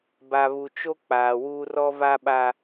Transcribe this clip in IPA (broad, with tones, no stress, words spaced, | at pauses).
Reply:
ba˨βu˨t͡ʃo˦ k͡paː˨wuː˦r ɔ˦va˦ɓa˦